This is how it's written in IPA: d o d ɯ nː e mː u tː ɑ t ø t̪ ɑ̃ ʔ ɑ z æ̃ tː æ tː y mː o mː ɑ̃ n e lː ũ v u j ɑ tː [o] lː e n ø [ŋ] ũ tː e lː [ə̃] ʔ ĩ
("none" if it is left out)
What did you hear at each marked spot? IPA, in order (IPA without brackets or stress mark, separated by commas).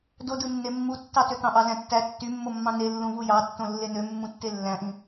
õ, mː, æ̃